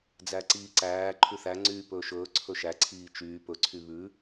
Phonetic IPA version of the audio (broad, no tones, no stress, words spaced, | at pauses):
d͡zæǀiːǀæː ǃʰʉθæ ŋ͡ǀyːpɵːʃɵː ǀʰɵʃæ ǀʰiːt͡ʃyː pɵ ǀʰyβʉ